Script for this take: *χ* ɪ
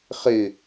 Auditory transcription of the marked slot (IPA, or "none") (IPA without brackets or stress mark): χ